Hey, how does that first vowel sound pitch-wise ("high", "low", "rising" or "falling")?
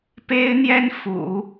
high